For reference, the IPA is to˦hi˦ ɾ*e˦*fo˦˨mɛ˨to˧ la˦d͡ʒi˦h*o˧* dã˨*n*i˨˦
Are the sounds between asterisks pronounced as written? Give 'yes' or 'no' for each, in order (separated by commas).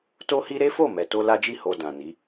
yes, yes, yes